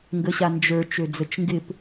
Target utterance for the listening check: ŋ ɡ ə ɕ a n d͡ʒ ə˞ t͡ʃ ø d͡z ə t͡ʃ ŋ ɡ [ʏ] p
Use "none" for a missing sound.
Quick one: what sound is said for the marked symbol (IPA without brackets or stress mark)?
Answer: ɪ